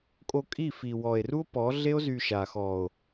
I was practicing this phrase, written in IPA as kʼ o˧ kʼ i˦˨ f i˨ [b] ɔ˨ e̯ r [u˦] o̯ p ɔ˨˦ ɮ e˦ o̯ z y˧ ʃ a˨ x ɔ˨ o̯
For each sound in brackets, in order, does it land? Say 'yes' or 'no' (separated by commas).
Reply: no, yes